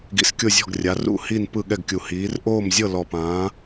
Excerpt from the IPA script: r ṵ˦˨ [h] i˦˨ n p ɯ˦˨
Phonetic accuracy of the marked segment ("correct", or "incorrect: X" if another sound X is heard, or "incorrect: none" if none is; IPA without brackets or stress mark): correct